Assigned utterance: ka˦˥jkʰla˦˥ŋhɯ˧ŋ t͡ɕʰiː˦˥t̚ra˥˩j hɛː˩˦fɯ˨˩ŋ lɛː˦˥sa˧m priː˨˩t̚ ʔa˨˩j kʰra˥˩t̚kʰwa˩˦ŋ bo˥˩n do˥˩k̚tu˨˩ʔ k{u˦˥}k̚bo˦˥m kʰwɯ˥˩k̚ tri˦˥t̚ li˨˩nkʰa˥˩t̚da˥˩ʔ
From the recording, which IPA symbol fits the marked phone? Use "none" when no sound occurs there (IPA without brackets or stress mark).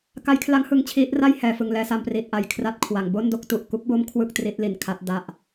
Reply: u˦˥